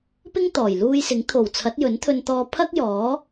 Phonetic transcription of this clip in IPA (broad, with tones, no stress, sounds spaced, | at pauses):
p ɪ˥ ŋ t̪ ɔː˨˩ j l uː˧ j s ɪ˨˥ ŋ t̪ʰ o˨˩ w t͡sʰ ɐ˨˥ t̚ j ɵ˨˥ n t̪ʰ ɵ˧ n t̪ ɔː˧ pʰ ɐ˥ k̚ j ɔː˨˥